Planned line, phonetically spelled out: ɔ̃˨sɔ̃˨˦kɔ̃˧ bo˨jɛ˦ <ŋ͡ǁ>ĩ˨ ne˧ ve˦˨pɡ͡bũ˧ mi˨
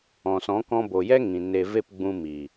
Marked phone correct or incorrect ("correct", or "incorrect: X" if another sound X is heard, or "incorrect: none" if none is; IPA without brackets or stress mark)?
incorrect: ŋ